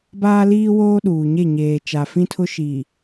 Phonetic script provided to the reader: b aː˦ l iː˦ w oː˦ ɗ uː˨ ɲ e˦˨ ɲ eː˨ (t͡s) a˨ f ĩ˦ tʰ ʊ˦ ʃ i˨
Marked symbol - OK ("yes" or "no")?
no